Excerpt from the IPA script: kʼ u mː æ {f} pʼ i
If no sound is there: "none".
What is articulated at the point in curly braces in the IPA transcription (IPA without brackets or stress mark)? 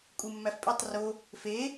f